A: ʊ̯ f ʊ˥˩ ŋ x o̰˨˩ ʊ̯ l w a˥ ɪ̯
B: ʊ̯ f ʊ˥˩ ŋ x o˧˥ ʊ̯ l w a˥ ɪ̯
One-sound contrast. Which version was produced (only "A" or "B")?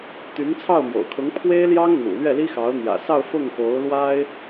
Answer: B